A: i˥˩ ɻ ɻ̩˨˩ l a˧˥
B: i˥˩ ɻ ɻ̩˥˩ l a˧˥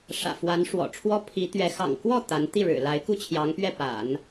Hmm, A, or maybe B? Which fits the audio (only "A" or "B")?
A